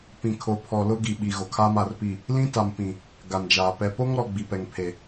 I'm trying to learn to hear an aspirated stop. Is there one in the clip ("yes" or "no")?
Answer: yes